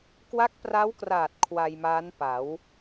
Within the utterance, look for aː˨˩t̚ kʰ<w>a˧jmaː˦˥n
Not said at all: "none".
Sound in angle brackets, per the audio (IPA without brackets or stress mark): w